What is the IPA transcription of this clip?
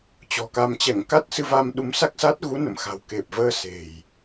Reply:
t͡ɕɔ̤˨˩ka˧m t͡ɕɛ˧˩ŋka˦˥t̚sɨ˧va˧m ɗu˨˦msa˦˥k̚sa˦˥t̚ ɣu˨˦ nə̰˧˨mxa̤˨˩wke˨˩p̚vəː˧ se̤˨˩j

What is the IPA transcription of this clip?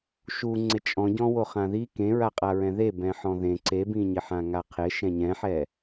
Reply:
ʃu ŋ͡ǀɪt͡ʃʼɔ̃ɟɔ̃ woχãði kẽɹaqʼaɹɛ̃ ðe bɛ̃ħɔ̃ðẽ ǀebĩɲɪħã ŋaqʰɪ ʃɛ̃ɲɛ̃ħɛ

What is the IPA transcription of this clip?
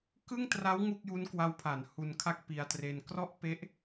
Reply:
kɯ˥˩ŋtra˦˥w ŋu˥˩k̚ju˦˥nkwa˦˥wpʰa˩˦n hu˧nkʰa˥˩k̚pi˧a̯tre˧n krɔ˥˩ʔpe˦˥ʔ

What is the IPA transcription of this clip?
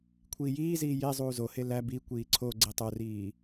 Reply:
kʷʰiːjiːziː je zˤuːzohe læ bi kʷiːǀʰoɡ͡ǀi tˤoriː

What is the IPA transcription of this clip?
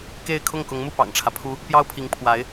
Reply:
ke˥˧ɪ̯ kʰʊ˥˩ŋkʊ˧˥ŋmu˥˩ pɑ̰˨˩ŋʈ͡ʂʰä˦pʰu˥ | pjɑ˥ʊ̯pʰi˧˥ŋpʰwa˧˥ɪ̯

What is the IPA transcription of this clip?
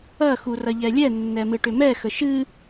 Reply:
ɐ xurɐʎɛlʲɛ nːɛmɨʈʏmɛ xəʃɨ

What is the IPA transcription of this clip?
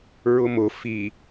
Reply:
ɹʊmʊ fi

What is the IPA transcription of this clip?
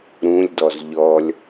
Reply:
ɾũlʲdɔz ʎɔlʲ

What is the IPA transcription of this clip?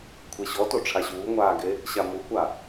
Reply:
kʷʰeɕɔto ʈ͡ʂʰaɕuːŋʷaː ɡe | ɕamukʷaː

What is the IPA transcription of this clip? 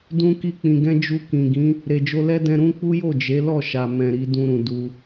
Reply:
dũ˦ki˦k͡pĩ˧ɡɛ̃˦ d͡ʒu˧kĩ˨ɡĩ˨˦ | ɾe˨d͡ʒo˧lɛ˦dɛ̃˧ ɾũ˦ k͡pu˦jo˦˨d͡ʒe˨˦ lɔ˦˨ʃa˨mɛ̃˨ ɾi˨˦ dũ˧ɾũ˨ du˧

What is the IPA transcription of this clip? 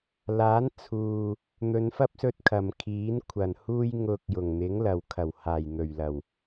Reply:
laː˨˥nt͡sʰuː˨ | n̪ɵ˨˧nfɐ˥p̚sɵ˧t̚ kʰɐ˨m kʰiː˨˥nkʷʰɐ˨˩nhuː˥j ŋʊ˧k̚ jʊ˨˩ŋn̪ɪ˨˥ŋlɐ˨wkʰɐ˨˩w haː˨˩jn̪ɵ˨˩ɥlɐ˨˩w

